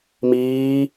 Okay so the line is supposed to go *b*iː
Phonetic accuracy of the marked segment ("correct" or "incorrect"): incorrect